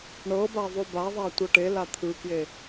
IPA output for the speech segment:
ɳ ɤ b a ðˤ o b a ðˤ a tʷ ɤ ʈ e l a t̪ʰ ɯ k j e

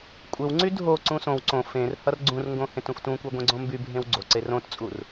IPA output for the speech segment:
kʷʼ ɘ w ŋ͡ǀ y dʱ o ǀ ũ s õ w ǀ õ f ẽ r h ʌ r ɡ͡ǀ ũ r ŋ ɡ õ h ẽ t ũ f t ũ kʷ e ɡʷ ẽ ɡ͡ǀ õ m b y bʱ ẽ w ɡ͡ǀ o ǀ e r õ t t͡sʼ u r

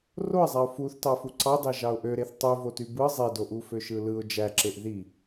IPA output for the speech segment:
r o ɪ̯ zˤ æ ʊ̯ f u θ t ɑ f u ǀ ɑ d ɑ ʒ ɑ ʊ̯ ʔ ø ɾ e θ tˤ y v o t y b ɯ zˤ e d o ʔ u f ø ʃ ɯ l ɯ ʊ̯ d͡ʒ æ ǁ e ʔ ð i

